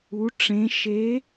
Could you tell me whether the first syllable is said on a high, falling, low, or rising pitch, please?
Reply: rising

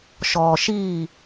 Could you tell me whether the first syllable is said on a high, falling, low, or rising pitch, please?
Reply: low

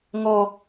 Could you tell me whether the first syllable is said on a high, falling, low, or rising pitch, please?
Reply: low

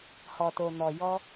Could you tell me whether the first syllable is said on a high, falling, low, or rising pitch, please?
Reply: low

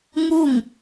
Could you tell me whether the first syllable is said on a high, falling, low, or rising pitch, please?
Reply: falling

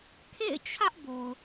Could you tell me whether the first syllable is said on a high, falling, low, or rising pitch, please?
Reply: falling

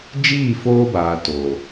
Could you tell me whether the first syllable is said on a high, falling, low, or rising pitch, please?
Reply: falling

